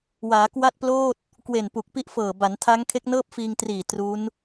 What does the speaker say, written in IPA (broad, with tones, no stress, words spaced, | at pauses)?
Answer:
waː˩˦ kwa˥˩t̚ploː˥˩t̚ | kwe˨˩npu˨˩k̚pi˦˥ʔfɤː˨˩ ba˩˦ntʰa˦˥ŋ kʰe˦˥k̚nɤː˥˩p̚fiː˧ŋtriː˨˩ tru˦˥n